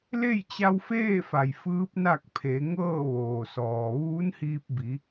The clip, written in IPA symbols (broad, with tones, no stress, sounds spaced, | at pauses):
l e˥˨ j t͡ɕ a˧ w f eː˥˨ f a˩ j f ɯː˧˥ p̚ n a˥˨ k̚ pʰ e˩˧ ŋ ɤː˥˨ ʋ oː˩ s ɔː˩ ʋ uː˧˥ n h iː˧ p̚ b i˩˧